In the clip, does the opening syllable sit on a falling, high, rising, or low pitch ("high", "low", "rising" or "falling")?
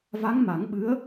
rising